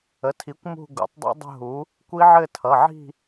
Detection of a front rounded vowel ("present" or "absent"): absent